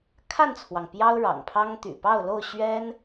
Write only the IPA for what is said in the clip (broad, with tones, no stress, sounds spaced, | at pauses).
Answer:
kʰ a˥˨ n t͡sʰ w ɑ˩ ŋ p j ɑ˦ ʊ̯ ɻ ɑ̰˨˩ ŋ pʰ ɑ˦ ŋ t̪ y̰˨˩ p ɑ˥˨ ʊ̯ l o˥˨ ʊ̯ ɕ ɥ ɛ˦ n